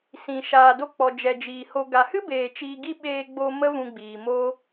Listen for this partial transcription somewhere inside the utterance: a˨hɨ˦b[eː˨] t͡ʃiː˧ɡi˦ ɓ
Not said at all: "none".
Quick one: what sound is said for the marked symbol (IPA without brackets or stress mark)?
eː˨